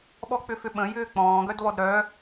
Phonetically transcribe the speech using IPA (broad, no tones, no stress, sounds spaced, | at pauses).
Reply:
ɓ ɔ k͡p ʏ f ʏ ɓ ə̃ j ʏː k͡p ɔ̃ː ɡ œ d β ɔ d ɾ œː